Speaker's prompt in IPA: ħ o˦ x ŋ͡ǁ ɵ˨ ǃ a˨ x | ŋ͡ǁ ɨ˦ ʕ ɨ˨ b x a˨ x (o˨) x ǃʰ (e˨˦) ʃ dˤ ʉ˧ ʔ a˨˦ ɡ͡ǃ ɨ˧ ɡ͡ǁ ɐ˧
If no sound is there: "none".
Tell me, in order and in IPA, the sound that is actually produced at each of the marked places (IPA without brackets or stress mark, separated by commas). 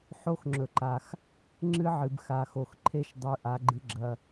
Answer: o˨, e˦